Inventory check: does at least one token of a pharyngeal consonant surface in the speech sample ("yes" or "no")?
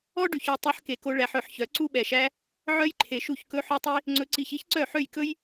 yes